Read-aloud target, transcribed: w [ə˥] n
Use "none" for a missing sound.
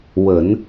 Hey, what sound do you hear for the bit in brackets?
ə˨˩˦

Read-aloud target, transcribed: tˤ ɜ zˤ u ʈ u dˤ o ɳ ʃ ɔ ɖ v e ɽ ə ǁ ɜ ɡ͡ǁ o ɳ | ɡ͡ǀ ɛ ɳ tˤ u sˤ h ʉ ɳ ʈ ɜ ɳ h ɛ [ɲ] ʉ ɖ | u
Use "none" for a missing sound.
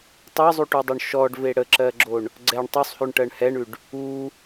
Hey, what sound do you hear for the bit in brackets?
ɳ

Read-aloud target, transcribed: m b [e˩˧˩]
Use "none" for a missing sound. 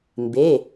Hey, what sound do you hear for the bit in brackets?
e˩˧˩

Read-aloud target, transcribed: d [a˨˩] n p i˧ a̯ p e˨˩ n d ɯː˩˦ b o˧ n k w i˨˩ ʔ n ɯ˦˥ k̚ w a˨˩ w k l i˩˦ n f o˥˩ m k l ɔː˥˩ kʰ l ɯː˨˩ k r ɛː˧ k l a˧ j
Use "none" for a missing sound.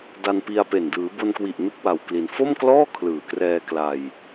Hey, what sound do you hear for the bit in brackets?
a˧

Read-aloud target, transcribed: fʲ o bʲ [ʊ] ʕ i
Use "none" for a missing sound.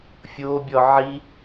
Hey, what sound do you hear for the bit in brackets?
ɔ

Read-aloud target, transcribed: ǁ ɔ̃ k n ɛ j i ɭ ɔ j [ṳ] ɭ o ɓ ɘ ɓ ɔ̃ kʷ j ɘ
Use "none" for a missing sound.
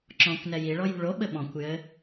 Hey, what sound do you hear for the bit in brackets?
ṳ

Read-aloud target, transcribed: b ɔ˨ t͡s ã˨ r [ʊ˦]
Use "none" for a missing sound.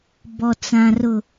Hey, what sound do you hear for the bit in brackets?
ʊ˨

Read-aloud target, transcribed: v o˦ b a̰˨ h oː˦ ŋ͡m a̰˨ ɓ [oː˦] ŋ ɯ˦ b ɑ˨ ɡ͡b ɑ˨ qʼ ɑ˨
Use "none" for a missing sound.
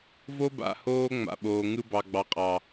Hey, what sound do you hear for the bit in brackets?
oː˨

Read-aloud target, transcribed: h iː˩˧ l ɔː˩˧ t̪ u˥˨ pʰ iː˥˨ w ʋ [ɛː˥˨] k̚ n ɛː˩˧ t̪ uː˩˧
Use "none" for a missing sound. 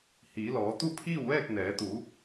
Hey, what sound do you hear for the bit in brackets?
ɛː˥˨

